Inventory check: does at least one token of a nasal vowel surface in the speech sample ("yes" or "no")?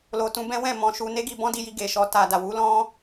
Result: yes